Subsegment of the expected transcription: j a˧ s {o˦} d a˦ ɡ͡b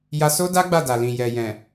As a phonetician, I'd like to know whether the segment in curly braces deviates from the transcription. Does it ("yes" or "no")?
no